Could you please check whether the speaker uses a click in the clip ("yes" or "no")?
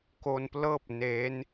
no